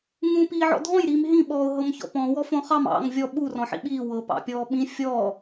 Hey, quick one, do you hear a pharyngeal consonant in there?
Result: yes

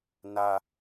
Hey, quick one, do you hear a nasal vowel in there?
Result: no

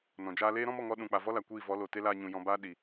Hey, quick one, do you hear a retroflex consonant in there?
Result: no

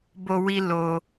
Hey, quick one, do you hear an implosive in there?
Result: no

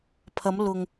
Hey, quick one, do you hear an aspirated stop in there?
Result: yes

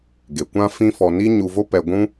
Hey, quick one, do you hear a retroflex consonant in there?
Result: no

